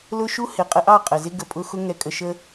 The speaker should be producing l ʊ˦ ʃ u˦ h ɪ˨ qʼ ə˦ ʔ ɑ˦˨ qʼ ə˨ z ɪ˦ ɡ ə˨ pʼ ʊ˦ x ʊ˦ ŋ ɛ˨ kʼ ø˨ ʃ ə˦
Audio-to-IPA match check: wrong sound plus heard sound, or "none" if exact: ø˨ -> ə˨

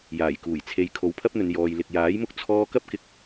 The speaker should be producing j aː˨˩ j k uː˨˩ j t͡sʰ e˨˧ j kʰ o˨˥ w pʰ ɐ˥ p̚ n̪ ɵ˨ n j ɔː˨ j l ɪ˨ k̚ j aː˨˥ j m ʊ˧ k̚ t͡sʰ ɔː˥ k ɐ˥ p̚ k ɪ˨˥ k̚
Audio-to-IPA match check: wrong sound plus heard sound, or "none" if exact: none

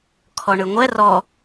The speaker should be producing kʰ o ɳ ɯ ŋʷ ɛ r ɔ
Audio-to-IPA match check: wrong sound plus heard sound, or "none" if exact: o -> ɔ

